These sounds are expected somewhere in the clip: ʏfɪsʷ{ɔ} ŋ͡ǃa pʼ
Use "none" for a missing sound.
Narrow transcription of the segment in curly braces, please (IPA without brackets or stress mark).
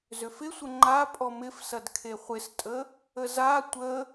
ə